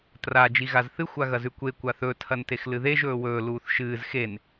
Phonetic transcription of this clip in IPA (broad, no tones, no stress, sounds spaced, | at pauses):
t r a d͡ʒ i ɣ a z θ ɨ xʷ a ɣ ɐ z ʉ kʷ e kʷ a θ ɵ tʰ ɐ n t e x l ɨ ð e ʒ ɵː w ɵː l uː θ ʃ ɨː z x e n